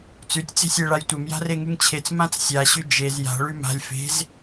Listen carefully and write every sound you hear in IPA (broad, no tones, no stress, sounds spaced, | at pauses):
t͡s ʉ tʲ t͡s e̤ sʲ ɛ ɭ a j tʷ ɛ m j a̤ r e ŋ ʉ ŋ t͡ɕʰ e t͡s m ã t͡s sʲ a ɕ ʉ d͡ʒ e z j a̤ ɭ ʉ m a̤ lʲ f e̤ z